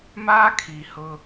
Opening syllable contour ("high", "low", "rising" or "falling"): high